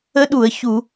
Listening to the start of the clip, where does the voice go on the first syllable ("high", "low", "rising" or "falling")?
rising